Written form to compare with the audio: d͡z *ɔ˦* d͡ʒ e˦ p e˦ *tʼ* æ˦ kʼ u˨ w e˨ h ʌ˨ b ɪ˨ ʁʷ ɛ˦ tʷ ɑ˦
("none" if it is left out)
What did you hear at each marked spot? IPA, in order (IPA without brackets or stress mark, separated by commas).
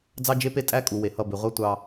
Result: ɑ˦, tʼ